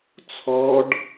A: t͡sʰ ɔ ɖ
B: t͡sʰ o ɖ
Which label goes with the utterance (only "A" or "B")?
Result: A